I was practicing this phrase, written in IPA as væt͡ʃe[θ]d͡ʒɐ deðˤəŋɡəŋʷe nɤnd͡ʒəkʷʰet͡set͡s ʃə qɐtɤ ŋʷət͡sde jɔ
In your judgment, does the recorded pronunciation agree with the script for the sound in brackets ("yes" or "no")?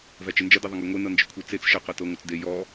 no